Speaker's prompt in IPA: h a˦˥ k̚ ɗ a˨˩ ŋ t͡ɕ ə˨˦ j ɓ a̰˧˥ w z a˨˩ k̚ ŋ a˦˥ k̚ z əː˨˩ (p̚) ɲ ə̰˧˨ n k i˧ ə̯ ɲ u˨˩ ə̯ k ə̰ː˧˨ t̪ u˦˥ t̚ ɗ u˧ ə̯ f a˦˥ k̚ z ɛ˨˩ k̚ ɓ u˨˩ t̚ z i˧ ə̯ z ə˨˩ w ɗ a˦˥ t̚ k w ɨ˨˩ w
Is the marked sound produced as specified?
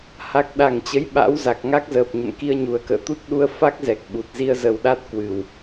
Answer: yes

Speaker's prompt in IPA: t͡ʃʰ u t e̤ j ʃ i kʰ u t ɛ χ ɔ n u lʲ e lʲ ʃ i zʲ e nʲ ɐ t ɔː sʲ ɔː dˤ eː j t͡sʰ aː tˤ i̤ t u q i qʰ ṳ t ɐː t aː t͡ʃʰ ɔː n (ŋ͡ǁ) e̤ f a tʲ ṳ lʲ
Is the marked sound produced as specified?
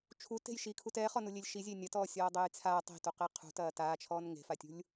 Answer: no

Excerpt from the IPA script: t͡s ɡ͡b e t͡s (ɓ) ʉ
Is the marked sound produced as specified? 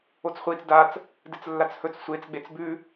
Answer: no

